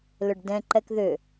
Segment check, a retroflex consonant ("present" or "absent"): present